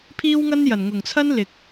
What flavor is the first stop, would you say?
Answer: aspirated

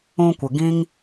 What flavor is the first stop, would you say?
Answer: plain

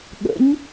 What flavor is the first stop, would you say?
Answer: implosive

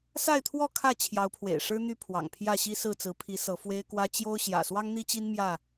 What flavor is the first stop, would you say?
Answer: aspirated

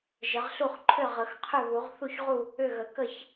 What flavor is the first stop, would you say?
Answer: click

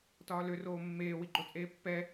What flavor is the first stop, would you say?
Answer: plain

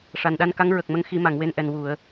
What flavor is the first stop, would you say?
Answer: implosive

